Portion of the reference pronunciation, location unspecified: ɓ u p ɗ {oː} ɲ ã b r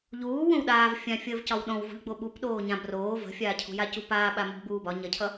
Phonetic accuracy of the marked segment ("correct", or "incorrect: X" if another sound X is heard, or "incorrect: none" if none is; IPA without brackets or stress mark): correct